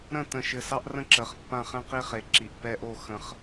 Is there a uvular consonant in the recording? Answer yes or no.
yes